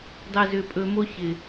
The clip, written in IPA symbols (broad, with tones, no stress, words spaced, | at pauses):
dˤɛ˨zʏ˨pʼɵ˨ mo˦çɪ˨